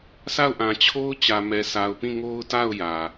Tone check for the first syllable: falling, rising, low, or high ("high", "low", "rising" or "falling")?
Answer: falling